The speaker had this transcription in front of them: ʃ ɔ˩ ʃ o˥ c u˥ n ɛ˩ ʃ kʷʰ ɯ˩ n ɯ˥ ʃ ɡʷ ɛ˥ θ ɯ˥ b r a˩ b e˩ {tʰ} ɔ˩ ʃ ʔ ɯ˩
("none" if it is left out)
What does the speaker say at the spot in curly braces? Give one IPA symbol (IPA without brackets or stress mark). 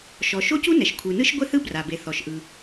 θ